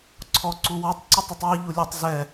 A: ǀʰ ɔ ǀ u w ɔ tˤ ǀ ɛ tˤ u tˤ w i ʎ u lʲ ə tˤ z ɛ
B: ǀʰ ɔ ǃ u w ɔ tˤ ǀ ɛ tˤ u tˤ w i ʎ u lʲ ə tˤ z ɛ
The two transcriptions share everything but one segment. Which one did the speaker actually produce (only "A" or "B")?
A